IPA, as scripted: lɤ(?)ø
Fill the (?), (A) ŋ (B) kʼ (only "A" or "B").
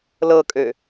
B